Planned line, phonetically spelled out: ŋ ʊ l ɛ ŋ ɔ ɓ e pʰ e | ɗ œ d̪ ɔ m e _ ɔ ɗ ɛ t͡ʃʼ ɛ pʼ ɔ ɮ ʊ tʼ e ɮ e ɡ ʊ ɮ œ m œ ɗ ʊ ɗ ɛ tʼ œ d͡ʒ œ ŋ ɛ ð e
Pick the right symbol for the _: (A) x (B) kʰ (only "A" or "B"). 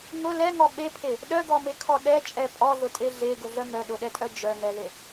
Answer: B